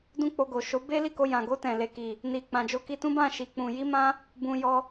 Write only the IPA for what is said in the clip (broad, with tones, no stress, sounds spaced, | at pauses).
d ũ˦ k͡p o˧ ɡ o˨ ʃ o˨˦ b e˦ l i˦˨ k o˧ j ã˨ ɡ o˧ t ɛ̃˨ l e˨ k i˨ | n i˨ k͡p ã˨ d͡ʒ o˧ k i˧ t ũ˦ b ã˦˨ ʃ i˨ k͡p ũ˨ j i˧ m ã˧ | b ũ˧ j ɔ˧